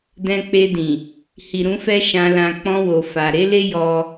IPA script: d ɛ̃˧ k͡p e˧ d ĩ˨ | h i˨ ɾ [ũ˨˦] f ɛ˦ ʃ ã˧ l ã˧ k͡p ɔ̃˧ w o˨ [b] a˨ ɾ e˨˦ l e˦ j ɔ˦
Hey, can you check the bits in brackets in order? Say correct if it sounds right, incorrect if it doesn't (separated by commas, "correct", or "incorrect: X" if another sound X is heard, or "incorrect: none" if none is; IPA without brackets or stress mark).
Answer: correct, incorrect: f